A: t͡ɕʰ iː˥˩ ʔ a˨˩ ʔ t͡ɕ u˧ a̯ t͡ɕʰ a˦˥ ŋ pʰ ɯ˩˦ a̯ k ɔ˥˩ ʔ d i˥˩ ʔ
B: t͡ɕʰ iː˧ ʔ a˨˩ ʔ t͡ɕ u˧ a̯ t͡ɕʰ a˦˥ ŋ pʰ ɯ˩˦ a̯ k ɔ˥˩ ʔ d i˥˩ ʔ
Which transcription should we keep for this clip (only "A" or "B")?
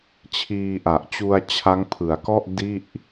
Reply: B